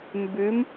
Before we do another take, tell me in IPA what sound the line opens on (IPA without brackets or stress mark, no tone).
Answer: m